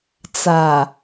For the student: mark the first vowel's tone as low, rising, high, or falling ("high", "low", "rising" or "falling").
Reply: low